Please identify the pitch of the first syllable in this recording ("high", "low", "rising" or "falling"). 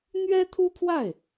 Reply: high